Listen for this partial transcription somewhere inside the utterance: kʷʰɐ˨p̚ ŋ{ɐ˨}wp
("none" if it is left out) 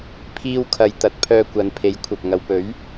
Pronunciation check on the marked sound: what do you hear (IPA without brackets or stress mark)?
ɐ˨